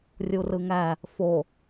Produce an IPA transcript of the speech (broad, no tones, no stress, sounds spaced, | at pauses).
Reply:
rʲ u r ɯ ŋ æ | f o